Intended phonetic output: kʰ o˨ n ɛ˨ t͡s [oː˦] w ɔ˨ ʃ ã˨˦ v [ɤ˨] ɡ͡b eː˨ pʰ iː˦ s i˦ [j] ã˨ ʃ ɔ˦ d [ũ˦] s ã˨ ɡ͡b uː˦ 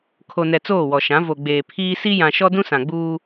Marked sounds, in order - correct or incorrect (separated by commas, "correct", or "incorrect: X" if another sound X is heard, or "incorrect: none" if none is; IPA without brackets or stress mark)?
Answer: incorrect: oː˦˨, incorrect: o˨, correct, correct